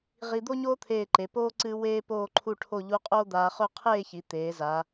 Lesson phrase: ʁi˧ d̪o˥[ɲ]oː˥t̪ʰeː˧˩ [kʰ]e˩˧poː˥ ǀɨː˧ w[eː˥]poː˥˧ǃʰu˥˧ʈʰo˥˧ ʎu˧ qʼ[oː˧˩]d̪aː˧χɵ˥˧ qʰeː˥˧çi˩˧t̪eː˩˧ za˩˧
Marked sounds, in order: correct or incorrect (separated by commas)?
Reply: correct, incorrect, correct, incorrect